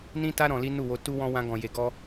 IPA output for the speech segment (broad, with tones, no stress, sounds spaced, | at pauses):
n ĩ˦ t a˦ ɾ ɔ̃˧ l i˦ n u˦˨ w o˧ t u˦ w ɔ̃˦ w ã˧ ɡ ɔ̃˨ j e˨ ɡ ɔ˧